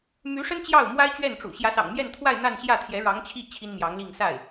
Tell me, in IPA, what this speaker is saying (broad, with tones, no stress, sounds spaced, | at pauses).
m y˧˥ ʂ ə˥ n t͡ɕ j ɑ˥˩ ʊ̯ m w a˥ ɪ̯ t͡ɕ ɥ ɛ˥˩ n ʈ͡ʂ ṵ˨˩ ɕ j ä˧˥ s ɑ̰˨˩ ŋ m j ɛ˥˧ n t̪ʰ w a˥˧ ɪ̯ n̪ a˥˧ n ɕ j ä˥˩ t̪ʰ j ɛ˧˥ ɻ ɑ˧˥ ŋ t͡ɕʰ i˥˩ t͡ɕʰ i˥ n m j ɑ˧˥ ŋ l i˥˧ ŋ s a˥˩ ɪ̯